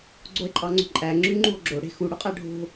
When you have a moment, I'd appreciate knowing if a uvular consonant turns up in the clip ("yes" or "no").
yes